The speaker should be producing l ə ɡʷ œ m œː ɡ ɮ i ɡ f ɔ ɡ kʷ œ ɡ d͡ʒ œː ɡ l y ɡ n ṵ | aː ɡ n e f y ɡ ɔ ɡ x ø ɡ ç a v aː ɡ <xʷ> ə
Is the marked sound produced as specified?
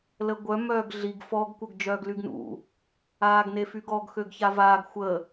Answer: yes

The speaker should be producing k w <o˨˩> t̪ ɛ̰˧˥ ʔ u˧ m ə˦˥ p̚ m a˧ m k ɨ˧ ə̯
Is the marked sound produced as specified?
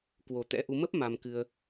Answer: yes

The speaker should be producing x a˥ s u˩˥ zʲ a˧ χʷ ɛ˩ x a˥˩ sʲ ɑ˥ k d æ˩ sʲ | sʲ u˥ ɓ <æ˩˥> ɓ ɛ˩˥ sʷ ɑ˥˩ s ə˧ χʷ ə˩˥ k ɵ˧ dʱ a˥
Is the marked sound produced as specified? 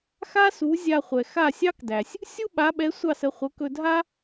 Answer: no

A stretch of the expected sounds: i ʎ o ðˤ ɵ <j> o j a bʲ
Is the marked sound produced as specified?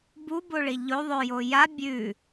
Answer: yes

